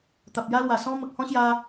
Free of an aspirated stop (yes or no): yes